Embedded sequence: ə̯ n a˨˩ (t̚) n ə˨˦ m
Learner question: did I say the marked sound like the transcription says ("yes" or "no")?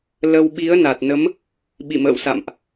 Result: yes